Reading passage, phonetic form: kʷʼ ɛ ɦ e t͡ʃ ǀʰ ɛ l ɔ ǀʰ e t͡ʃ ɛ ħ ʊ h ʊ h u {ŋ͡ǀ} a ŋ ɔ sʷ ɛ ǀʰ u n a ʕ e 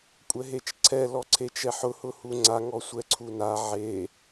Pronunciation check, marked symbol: correct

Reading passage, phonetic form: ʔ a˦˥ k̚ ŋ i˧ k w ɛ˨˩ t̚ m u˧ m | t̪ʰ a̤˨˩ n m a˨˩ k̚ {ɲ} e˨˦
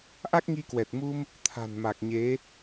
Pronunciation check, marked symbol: correct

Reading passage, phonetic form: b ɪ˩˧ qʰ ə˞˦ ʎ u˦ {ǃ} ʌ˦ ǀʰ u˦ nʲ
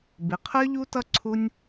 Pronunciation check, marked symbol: incorrect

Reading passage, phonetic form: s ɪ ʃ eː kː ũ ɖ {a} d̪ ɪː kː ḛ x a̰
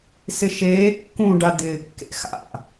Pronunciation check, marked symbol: correct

